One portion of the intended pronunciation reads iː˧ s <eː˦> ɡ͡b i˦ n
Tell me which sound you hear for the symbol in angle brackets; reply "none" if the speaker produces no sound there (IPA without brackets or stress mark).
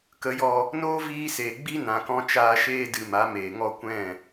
eː˨